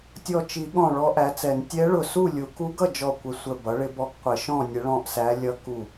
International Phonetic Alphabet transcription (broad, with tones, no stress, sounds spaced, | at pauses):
tʲ ɔ˧˩ t͡ʃ i˨˩˦ ɠ ɔ̃˧˩ ɭ ɔ˧˥ ʔ æ˩˥ t͡s ɛ˨˩˦ n tʲ ɛ˧˥ ɭ ʊ˧˩ s u˥˨ lʲ u˨˩˦ k u˧˥ ɡ ʌ˥˨ d͡ʒ ɔ˧˩ kʷ ə˧˩ sʷ ə˧˩ b ʌ˩˥ ɭ ɪ˧˥ b ɔ˧˥ ɡ qʷ ɪ˨˩˦ ʃ ɔ̃˥˨ nʲ ə˧˥ ɭ ɔ̃˥˨ ʔ s æ˧˥ lʲ ʌ˧˥ k u˧˩